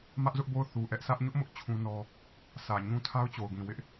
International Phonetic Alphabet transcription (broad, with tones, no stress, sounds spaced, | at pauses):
m ä˦ ʔ z ʊ˦ ʔ b o˦˨ ʊ̯ θ u˨ ʔ ɛ˦ ʔ s ä˦ ʔ ɲ ʊ˦ ʔ m ʊ˦ ʔ t͡ɕʰ ũ˦ n ɔ˦ | s ä˨ ɲ ũ˦ tʰ a˦ ʊ̯ t͡ɕ o˨ ʊ̯ ɡ ĩ˨ w ɪ˦ ʔ